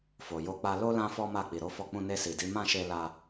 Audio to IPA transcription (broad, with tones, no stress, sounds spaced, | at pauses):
f o˨ j o˧ k͡p a˧ l o˦ l ã˦ f ɔ˦ m a˦˨ k͡p i˨ ɾ o˧ f ɔ˧ k͡p ũ˧ n e˧ s i˨ d i˨˦ m ã˦˨ ʃ e˧ l a˧